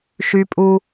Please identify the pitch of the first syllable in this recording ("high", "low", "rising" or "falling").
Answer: high